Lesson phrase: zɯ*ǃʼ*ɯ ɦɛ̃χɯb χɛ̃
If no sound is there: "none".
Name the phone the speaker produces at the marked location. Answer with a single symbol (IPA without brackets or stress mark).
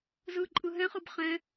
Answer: ǃʼ